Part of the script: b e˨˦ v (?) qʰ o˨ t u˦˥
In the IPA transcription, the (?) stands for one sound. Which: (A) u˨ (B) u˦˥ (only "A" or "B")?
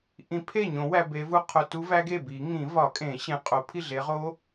B